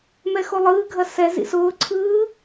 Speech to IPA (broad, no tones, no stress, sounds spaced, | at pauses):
m ɛ x o lˠ ɯː ɡʱ ɐ s ɛ z ḭ s ʊː ǀʰ ɯː